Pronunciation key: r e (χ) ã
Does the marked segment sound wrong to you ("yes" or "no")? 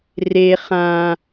no